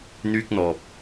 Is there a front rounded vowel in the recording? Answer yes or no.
yes